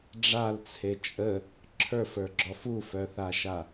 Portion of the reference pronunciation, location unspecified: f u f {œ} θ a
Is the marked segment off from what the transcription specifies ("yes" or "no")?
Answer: no